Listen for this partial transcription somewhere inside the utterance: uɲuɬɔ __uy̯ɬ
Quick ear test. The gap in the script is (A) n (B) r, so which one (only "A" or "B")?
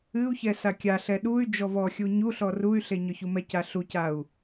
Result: B